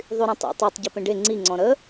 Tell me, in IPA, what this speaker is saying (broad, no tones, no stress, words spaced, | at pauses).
ðˤyɾãtˤḛ tˤotˤ ɟøpẽɖe ŋ͡ǀi ŋ͡ǀɔ̃ɾə